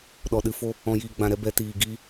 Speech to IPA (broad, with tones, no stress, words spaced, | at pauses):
ɗɔ˨ɗɨ˨fo˦ | ɔ̃˨jiː˨ɡ͡bã˨ɾɛ˧ bɛ˨tiː˨ ɡiː˦